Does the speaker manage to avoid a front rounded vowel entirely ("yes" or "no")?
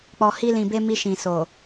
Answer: yes